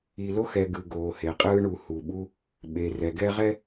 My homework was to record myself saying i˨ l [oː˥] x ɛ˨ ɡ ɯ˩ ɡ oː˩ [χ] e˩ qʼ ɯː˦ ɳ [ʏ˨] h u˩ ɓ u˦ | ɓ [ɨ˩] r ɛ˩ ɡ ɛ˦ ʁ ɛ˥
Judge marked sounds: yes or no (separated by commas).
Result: no, no, no, no